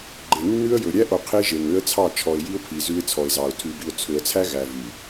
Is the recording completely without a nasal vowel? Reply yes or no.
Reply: yes